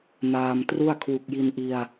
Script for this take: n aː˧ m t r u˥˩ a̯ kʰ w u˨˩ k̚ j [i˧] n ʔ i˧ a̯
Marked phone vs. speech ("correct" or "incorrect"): correct